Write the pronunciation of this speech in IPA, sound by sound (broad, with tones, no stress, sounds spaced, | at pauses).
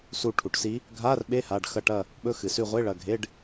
s u˦˨ ʈʰ u˩˧ ʈ s i˧˥ | ɡʱ a˧˥˧ r ɓ e˧˥˧ h a˩˧˩ ɖ x ɐ˦˨ ʈ ɐ˦˨ | ɓ ɵ˧˥˧ x ɨ˩˧ s ʉ˦˨ ʁʷ e˧˥˧ ɭ ɐ˩˧˩ ɡʱ e˧˥˧ ɖ